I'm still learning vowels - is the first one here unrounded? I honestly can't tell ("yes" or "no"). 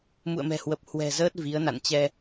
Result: no